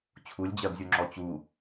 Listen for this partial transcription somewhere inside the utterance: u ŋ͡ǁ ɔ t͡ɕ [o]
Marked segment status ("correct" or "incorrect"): incorrect